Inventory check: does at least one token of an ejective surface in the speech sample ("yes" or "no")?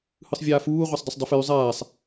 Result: no